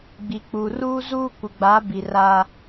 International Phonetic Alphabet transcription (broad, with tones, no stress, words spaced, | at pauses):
ɡ͡bi˨ k͡pu˨ruː˦zuː˦ kʷɪ˨ɡ͡ba˨˦bi˨ ra˦